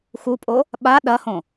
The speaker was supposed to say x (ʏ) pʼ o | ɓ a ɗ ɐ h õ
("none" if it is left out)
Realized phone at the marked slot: u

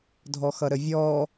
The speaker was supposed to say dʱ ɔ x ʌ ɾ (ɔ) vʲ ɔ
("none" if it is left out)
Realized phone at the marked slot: ə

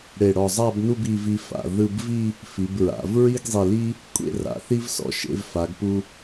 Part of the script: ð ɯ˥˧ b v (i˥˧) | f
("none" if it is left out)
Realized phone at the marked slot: i˥˧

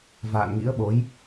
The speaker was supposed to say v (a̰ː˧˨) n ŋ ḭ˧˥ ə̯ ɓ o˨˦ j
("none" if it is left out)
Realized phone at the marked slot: a̰ː˧˨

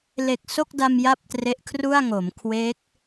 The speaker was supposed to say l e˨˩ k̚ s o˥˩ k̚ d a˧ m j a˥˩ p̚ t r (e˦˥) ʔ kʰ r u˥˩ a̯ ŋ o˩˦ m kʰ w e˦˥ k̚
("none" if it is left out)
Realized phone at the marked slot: e˦˥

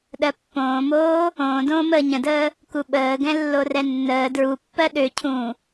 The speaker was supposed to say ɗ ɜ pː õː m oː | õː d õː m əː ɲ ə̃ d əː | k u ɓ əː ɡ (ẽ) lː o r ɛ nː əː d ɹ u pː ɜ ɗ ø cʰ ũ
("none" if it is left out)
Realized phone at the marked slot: ɛ̃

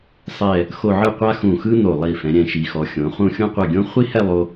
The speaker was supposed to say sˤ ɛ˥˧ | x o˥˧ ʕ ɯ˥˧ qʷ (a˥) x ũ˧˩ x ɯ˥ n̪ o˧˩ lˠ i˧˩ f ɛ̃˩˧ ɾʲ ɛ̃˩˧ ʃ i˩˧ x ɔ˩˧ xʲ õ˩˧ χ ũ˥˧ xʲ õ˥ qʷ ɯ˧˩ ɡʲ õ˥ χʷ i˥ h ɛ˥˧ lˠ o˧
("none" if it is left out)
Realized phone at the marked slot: a˥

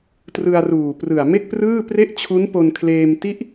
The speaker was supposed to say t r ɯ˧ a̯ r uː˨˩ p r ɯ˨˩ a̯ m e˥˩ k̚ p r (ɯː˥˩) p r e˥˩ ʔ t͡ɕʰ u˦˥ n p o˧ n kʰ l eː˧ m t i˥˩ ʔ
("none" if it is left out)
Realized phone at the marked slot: ɯː˥˩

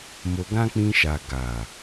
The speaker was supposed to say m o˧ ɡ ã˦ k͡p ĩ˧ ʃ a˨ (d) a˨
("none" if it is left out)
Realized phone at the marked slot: ɡ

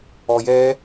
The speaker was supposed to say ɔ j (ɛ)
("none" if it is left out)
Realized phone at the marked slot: ɛ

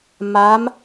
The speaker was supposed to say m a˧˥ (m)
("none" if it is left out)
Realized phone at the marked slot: m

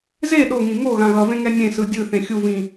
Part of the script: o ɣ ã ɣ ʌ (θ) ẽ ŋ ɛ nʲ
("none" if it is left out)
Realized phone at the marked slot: v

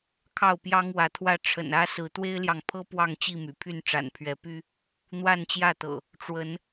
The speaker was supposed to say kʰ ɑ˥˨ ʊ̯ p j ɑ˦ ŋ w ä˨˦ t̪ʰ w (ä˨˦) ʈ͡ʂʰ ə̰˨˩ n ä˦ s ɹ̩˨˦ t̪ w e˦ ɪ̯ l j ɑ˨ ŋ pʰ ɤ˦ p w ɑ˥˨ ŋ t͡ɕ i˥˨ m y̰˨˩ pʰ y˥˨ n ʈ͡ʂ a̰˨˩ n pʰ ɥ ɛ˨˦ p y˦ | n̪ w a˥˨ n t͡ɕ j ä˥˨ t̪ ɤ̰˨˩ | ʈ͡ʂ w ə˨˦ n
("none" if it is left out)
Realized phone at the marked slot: ä˦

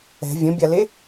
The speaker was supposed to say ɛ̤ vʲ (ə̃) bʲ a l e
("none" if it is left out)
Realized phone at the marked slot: ə̃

